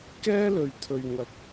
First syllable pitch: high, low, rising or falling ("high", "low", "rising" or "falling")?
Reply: high